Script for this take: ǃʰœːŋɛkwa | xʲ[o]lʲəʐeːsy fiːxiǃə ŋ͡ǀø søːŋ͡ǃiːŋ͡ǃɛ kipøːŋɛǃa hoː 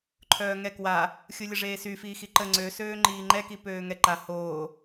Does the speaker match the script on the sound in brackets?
no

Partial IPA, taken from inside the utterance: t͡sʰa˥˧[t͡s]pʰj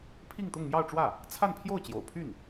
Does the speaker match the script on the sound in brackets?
no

